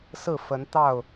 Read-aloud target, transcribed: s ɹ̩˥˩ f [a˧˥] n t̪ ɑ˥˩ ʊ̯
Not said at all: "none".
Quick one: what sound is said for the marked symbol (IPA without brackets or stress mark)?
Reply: ə˧˥